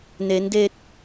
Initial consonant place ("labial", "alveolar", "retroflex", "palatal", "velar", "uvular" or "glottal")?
alveolar